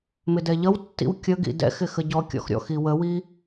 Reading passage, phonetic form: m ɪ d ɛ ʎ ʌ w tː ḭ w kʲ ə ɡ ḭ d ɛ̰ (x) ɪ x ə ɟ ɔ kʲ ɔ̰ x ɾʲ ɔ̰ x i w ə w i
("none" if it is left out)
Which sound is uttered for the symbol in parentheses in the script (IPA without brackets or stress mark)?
x